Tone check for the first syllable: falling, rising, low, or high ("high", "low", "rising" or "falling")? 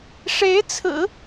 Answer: rising